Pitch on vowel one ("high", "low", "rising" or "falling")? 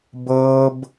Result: high